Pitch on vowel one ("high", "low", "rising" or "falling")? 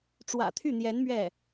low